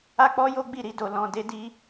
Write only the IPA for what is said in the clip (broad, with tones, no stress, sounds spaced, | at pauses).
a˦ k͡p ɔ˦ j o˦ ɡ͡b i˦˨ ɾ i˧ d o˨ l ɔ̃˨ d e˧ d i˧